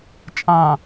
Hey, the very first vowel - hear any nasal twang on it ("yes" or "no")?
yes